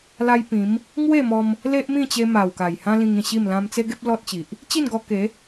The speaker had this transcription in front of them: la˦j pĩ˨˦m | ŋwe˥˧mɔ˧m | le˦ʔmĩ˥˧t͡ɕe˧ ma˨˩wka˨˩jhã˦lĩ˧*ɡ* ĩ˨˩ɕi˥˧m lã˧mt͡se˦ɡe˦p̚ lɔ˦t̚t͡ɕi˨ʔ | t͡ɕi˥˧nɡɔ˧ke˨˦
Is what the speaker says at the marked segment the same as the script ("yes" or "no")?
no